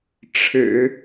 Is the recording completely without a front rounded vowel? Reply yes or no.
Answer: yes